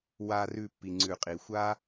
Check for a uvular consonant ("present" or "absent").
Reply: present